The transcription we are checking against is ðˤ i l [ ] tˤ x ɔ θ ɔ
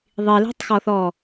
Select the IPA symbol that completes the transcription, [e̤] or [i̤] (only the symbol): e̤